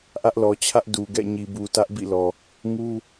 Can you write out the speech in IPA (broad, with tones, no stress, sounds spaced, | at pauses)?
ʔ ä˦ ʔ l ɔ˨ t͡ɕʰ ä˦ ʔ d u˨ ɡ ɛ̰˦˨ ɲ i˨ b u˨ t ä˦ ʔ b ḭ˦˨ l ɔ˨ | ŋ u˦